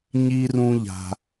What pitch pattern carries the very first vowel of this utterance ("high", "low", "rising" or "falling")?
high